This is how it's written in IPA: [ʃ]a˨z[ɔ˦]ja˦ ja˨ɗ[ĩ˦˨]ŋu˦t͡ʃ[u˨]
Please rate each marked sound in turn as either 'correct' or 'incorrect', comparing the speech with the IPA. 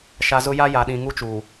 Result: correct, incorrect: ʊ˦, incorrect: ĩ˨, incorrect: uː˨

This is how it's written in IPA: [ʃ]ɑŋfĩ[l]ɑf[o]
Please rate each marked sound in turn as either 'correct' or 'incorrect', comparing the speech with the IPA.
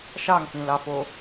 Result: correct, correct, correct

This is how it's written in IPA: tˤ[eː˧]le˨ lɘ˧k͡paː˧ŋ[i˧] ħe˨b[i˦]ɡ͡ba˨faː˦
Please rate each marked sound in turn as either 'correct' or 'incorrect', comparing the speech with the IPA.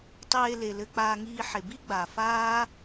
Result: correct, incorrect: iː˧, correct

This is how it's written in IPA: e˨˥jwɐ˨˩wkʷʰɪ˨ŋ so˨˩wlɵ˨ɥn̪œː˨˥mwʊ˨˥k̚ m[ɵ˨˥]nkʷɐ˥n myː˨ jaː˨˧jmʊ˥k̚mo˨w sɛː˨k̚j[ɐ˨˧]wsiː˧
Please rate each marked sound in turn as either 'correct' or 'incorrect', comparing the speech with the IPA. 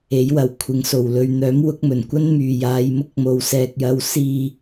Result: incorrect: ɵ˨˩, correct

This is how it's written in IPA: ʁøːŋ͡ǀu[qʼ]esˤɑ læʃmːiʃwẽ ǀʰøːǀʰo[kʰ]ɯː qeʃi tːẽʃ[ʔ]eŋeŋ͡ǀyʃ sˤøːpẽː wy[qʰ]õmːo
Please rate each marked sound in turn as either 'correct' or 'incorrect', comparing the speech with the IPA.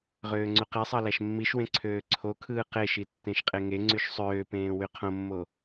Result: incorrect: q, correct, incorrect: qʼ, correct

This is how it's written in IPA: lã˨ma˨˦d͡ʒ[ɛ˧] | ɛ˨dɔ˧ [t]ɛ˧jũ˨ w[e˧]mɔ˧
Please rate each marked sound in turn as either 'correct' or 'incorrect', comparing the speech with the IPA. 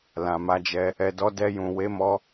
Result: correct, incorrect: d, incorrect: e˨˦

